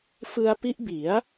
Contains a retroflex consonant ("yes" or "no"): no